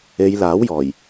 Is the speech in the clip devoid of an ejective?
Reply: yes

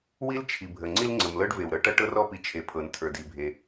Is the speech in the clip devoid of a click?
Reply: no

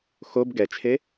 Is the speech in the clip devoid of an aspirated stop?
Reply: no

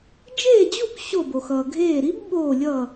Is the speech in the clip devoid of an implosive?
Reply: no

